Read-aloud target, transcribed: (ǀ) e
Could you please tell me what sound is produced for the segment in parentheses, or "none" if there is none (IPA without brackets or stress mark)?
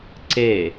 ǀ